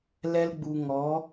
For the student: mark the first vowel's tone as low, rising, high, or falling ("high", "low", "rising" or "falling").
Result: high